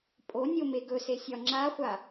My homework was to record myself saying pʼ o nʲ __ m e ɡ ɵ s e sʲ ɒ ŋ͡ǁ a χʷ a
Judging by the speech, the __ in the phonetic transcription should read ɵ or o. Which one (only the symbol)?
o